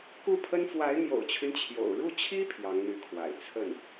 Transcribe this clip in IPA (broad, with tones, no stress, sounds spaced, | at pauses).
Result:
k u˥˩ pʰ ə˥ n f w a˧˥ ɪ̯ n̪ j o̰˨˩ ʊ̯ t͡ɕʰ y˦ n t͡ɕʰ j o̰˨˩ ʊ̯ ɻ u˥˩ t͡ɕʰ i˥ pʰ j ɑ˧˥ ŋ n̪ y˧˥ kʰ w a̰˨˩ ɪ̯ t͡sʰ ə˥˩ n